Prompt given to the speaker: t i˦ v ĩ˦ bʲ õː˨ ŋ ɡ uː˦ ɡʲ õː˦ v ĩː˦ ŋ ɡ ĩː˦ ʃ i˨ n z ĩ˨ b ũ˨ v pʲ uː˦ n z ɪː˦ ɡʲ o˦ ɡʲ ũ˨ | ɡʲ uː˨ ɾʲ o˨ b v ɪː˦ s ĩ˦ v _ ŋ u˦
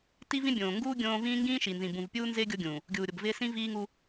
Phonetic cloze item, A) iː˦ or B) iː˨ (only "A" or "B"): A